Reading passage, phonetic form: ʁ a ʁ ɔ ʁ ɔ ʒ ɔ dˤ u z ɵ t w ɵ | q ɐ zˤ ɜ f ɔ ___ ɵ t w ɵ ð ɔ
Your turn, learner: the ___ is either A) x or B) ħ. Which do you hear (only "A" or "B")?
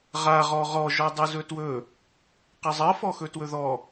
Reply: A